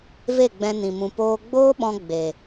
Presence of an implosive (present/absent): present